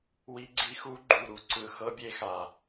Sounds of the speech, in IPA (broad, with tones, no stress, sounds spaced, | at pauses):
w i˦˥ ɡ͡ǀ i˦˥ x u˦˥ ɡ͡ǃ u˨˩ ɾ u˨˩ ǀ ɯ˨˩ x ɤ˦˥ bʲ e˦˥ x a˨˩